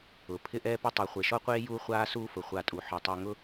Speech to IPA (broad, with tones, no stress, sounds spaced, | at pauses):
ʊ˩ pʰ ɪ˥ ʔ ɛː˥ p ɪ˥ tˤ a˨ χʷ e˩ ʃ ɔ˥ qʷ eː˥ j uː˦ χʷ aː˦ s uː˦ f ʊ˩ χʷ a˨ tʼ u˩ ħ ɔ˩ tˤ e˨ ŋ ʊ˦